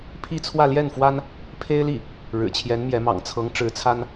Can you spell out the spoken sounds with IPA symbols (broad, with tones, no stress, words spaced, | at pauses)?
pʰi˥˧t͡sʰwä˥˧ljɛ˥˩nfwa˥n | pʰe˥ɪ̯li˥˩ | ɻɻ̩˨˩t͡ɕʰjɛ˧˥n mjɛ˧˥mɑ̰˨˩ŋ t͡sʰɤ˧˥ŋʈ͡ʂɻ̩˧˥t͡sʰa˥n